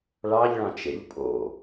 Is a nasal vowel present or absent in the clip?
present